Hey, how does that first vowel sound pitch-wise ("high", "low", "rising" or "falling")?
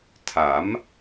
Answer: rising